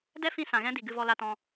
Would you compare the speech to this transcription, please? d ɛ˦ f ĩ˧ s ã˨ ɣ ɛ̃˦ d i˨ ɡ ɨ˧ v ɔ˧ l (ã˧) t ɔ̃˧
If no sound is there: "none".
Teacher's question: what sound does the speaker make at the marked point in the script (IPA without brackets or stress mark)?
a˧